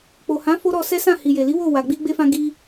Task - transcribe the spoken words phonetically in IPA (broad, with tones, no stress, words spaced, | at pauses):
k͡po˨hã˨˦ fo˦ɾɔ˧sɛ˦sã˦˨ hi˨je˨li˨˦ wo˦˨ wa˨ɡ͡bi˧ ɡ͡be˧fã˧ ɡi˧